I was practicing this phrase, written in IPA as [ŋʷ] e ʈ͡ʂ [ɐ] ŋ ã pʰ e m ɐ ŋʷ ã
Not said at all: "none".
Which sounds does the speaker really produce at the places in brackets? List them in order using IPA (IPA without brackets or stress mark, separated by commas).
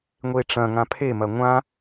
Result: ŋʷ, ɐ̃